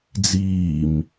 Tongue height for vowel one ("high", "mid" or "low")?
high